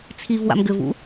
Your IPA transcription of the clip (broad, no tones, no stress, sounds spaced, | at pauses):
t͡sʰ i v w a̰ m ɡ ɘ v ṵ